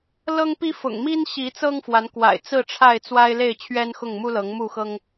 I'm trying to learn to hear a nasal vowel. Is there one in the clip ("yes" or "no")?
no